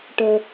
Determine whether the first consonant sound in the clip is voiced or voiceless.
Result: voiceless